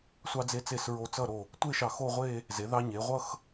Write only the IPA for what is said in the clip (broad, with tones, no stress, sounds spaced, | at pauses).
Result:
sʷ ɑ˧ d͡z e˧ t͡s e˧˩ s ɹ o˧ t͡s ʌ˥˧ ɾ o˧˩ | tʷ e˥˧ ʃ ɑ˧˩ x o˥˧ ʁʷ e˥˧ | z e˩˧ ð ɑ˧ ɲ e˩˧ ʁʷ ʌ˥˧ x